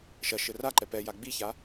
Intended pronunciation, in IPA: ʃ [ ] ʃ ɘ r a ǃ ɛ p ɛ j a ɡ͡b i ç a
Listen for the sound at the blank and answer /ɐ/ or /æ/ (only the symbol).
ɐ